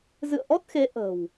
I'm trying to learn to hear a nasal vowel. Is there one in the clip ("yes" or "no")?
no